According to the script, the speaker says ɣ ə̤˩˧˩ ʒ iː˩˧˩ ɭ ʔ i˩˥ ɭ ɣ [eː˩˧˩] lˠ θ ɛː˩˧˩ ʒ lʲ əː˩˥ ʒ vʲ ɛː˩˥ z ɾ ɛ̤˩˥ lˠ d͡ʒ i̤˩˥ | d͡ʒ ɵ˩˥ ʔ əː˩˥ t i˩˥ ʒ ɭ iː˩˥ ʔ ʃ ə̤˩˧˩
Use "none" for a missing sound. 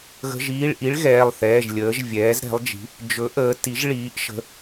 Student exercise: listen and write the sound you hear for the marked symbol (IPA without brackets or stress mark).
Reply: ɛː˩˧˩